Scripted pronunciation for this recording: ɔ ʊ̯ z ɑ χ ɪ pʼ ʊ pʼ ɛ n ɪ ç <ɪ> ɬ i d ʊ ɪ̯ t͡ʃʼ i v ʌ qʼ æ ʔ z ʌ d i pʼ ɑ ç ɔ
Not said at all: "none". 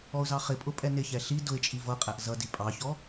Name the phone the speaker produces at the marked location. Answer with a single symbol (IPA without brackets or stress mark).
ɛ